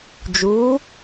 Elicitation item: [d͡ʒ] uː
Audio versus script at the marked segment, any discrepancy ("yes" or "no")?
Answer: no